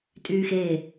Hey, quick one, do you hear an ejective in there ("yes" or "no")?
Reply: yes